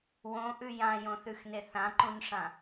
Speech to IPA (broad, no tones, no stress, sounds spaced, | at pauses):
w õ ʔ ʉ j ã j õ θ ʉ x n e θ ã ǃ ũ n ʂ ã